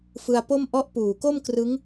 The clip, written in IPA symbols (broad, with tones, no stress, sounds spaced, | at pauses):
f ɯ˧ a̯ p o˥˩ m ʔ ɔ˦˥ ʔ p uː˨˩ k o˥˩ m k r ɯ˦˥ ŋ